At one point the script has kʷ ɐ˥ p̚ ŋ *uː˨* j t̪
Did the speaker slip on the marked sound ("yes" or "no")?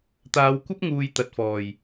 no